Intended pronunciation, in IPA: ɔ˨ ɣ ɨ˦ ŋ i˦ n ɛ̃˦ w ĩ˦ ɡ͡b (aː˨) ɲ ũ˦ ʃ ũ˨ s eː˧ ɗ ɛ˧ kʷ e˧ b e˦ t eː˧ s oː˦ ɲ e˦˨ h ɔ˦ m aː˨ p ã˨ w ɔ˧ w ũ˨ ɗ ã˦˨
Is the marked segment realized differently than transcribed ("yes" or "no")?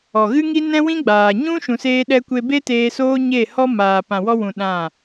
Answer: no